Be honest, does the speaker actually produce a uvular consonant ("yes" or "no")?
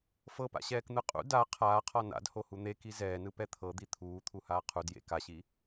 yes